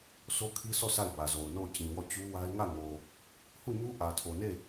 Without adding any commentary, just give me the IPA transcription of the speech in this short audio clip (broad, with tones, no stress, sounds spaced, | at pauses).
sʰ o˦ kʰ i˦ sʰ ɔ˦˨ s a˦˨ ɪ̯ b ä˨ z o˨ ʊ̯ n o˦˨ ʊ̯ t͡ɕ ĩ˨ w ɔ˦˨ t͡ɕ u˦ w a˦ ɪ̯ ŋ ä˦˨ ŋ o˨ | h u˦˨ ɲ u˦ ʔ ä˨ tʰ o˨ n e˦˨